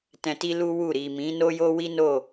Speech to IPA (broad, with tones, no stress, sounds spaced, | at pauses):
t ɛ̃˧ t i˦ l u˦ w u˦˨ ɾ i˨ m ĩ˨˦ n o˦ j o˦ w i˦ n o˦˨